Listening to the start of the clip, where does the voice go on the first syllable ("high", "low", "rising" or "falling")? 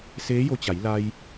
rising